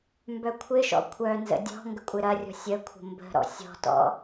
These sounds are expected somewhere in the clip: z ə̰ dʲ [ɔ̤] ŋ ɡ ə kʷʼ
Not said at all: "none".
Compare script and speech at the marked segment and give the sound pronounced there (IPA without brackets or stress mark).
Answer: ɔ̤